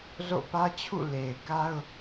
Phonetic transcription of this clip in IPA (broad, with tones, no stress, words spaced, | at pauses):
zo̰˦˨pä˦t͡ɕʰṵ˦˨ le˨ɪ̯ ka˦ʊ̯